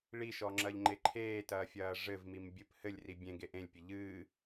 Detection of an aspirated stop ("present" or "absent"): present